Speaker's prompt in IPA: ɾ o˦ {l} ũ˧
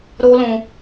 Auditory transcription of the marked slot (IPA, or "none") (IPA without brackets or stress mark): l